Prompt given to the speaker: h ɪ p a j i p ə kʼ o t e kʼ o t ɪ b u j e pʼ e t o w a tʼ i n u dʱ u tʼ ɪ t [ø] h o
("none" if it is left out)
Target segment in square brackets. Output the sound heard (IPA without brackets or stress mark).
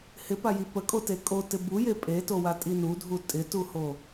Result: u